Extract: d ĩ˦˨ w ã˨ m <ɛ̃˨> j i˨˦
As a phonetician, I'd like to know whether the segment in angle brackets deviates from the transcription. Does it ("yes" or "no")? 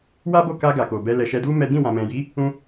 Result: no